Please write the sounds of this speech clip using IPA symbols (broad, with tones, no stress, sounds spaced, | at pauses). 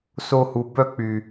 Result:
s o˧ h u˨ b œ˦˨ k͡p y˨